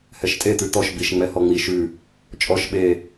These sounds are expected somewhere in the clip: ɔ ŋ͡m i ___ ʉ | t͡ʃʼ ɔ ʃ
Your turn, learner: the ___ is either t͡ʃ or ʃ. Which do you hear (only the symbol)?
ʃ